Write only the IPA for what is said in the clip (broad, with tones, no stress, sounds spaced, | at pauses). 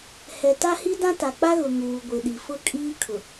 h ɛ˨ t a˦ h i˦ d ã˦ t a˨ k͡p a˦ ɣ ʊ˨ ŋ uː˨ ɡʷ ɪ˨ ɗ i˨ f ʊ˦˨ kʼ iː˦ kʰ ʊ˨